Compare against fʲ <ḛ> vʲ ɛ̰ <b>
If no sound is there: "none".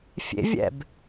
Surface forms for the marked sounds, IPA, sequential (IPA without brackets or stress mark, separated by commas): ḛ, b